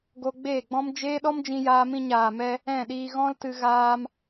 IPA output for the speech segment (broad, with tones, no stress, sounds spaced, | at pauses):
ɡ o˧ ɡ͡b eː˦˨ ɡ͡b ɔ̃˦ m d͡ʒ eː˦ ɗ ɔ˦ m d͡ʒ ĩ˧ j aː˧ m ĩ˧ ɲ aː˨ m ɛ˧ | ɛ̃˦˨ ɗ iː˧ ɣ ɔ̃˦ l t ɨ˧ ɣ aː˧ m